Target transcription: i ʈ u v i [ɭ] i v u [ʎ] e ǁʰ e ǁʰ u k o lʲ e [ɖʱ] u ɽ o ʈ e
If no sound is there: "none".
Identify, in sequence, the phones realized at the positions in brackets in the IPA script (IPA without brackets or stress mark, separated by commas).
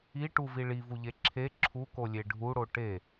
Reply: ɭ, ʎ, ɖʱ